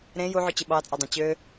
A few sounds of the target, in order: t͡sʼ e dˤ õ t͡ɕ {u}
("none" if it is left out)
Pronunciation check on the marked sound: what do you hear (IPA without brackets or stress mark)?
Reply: ø